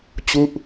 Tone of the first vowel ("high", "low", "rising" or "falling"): falling